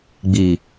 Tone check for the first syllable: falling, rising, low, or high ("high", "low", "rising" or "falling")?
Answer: low